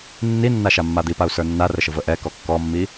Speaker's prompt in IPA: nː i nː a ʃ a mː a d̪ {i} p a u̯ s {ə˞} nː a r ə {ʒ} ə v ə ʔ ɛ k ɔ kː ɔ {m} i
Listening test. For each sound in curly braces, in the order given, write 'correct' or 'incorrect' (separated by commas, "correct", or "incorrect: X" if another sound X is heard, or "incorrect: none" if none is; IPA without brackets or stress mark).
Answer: correct, correct, incorrect: ʃ, incorrect: mː